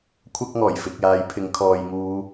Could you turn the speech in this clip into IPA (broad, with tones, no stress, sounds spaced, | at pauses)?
kʷʰ ɐ˥ k̚ ŋ ɔː˨˩ j f ɪ˨ k̚ j aː˨˥ j pʰ ɪ˨˥ ŋ kʰ ɔː˨ j ŋ uː˨˧